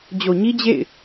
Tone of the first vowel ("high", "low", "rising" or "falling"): low